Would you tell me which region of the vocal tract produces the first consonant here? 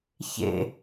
palate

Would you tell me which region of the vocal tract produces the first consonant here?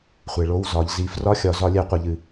uvula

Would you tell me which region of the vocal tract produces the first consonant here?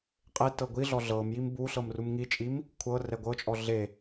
uvula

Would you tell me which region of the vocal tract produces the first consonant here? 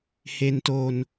throat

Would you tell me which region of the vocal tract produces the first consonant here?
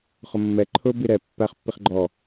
uvula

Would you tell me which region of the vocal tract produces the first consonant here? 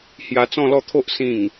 throat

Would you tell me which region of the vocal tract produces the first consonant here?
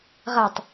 uvula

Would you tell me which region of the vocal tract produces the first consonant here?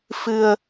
lips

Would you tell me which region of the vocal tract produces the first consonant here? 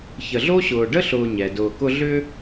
palate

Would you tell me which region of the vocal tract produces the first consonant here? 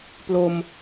lips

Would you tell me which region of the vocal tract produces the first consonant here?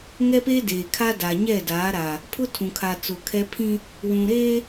velum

